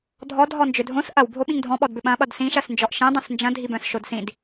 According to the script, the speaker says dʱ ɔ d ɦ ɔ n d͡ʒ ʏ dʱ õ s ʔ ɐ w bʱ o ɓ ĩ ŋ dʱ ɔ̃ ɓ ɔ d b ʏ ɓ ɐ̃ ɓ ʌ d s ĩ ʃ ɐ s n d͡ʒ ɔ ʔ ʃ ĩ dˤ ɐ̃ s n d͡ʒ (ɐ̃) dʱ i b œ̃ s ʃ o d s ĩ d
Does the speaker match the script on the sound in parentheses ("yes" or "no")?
yes